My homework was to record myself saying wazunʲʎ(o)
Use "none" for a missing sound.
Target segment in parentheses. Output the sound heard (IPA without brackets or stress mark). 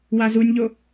o